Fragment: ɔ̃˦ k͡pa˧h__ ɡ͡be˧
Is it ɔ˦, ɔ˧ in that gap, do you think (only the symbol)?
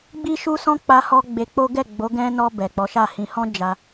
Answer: ɔ˧